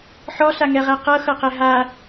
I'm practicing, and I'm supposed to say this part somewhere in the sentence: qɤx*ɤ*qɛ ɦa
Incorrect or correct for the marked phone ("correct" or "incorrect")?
correct